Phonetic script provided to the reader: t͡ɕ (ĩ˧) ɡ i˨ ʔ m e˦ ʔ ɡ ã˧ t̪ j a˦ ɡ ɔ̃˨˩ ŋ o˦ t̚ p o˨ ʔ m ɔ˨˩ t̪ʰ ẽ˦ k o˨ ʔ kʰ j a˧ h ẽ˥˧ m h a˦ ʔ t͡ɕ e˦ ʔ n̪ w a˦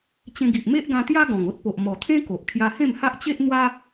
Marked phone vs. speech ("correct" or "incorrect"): incorrect